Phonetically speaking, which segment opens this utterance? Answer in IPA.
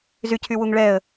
z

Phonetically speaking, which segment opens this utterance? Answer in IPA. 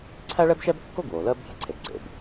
ǀʰ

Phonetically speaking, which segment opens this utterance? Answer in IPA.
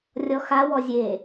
rʲ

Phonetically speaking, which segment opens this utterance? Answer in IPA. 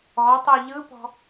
ɔ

